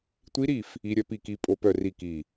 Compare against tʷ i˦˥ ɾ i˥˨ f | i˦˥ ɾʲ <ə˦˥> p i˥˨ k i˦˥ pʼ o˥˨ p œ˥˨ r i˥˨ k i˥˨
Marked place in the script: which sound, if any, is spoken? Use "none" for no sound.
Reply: œ˦˥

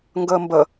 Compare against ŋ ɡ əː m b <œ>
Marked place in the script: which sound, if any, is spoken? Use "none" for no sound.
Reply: ə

